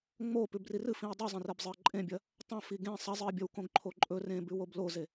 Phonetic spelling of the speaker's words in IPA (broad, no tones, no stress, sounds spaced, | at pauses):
ŋ͡m o p ʉ b r i r ɨ f ĩ ɐ̯ dˤ ʉ zˤ ẽ r e b zˤ ɨ ɐ̯ ǃʼ ẽ bʲ ɐ | tˤ ɐ̃ f i ɡ ẽ sˤ ɐ zˤ ɨ ɐ̯ bʲ ɐ w k õ ɡ ǃʰ o ǃʼ ɵ r ẽ b ʉ w o b l o z e